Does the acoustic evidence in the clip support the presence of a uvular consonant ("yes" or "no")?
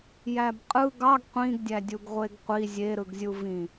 yes